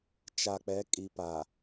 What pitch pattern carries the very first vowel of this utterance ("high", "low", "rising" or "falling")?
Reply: low